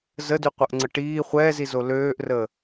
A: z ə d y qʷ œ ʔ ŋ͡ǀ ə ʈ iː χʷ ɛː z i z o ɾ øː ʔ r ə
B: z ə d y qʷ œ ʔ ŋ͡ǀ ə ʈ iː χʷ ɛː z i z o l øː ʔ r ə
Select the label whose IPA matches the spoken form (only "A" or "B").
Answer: B